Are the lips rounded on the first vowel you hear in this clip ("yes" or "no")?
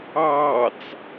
no